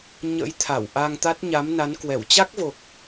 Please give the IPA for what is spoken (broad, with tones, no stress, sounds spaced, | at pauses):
ɲ ə̰˧˥ j t̪ʰ a˧˩ w ʔ a˧ ŋ t̪ a˦˥ t̚ ɲ a˨˦ m n a˨˦ n k w ɛ˧˩ w t͡ɕ a˦˥ k̚ v o˨˩ k̚